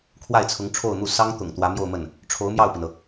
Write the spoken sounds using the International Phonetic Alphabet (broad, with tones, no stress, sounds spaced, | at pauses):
kʰ w a˥˩ ɪ̯ t͡sʰ ʊ˧˥ ŋ ʈ͡ʂʰ o˥˧ ʊ̯ n̪ u˥˩ s ɑ˥ ŋ t̪ ʊ̰˨˩ ŋ t̪ w ä˧˥ m j o˥˧ ʊ̯ m ə˥˩ n | ʈ͡ʂʰ o˧˥ ʊ̯ m j ɑ˥˩ ʊ̯ p i˩ n ɤ˩